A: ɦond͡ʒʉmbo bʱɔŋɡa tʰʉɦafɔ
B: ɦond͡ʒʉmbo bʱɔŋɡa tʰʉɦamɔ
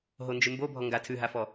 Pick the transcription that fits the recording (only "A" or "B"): A